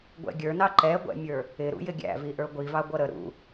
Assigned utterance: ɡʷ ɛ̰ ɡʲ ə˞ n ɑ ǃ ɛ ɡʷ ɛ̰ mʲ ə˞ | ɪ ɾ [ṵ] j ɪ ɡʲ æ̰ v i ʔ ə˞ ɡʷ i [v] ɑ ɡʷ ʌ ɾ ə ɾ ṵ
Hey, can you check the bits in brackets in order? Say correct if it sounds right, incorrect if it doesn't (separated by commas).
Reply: correct, correct